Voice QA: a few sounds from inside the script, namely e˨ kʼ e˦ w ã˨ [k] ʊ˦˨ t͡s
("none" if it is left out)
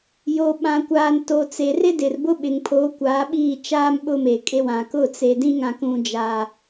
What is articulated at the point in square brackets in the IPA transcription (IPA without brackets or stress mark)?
k